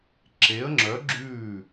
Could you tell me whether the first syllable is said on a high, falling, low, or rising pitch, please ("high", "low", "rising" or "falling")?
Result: rising